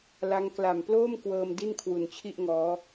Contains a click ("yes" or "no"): no